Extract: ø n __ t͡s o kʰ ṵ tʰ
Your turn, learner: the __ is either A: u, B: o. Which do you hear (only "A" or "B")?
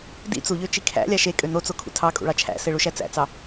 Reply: B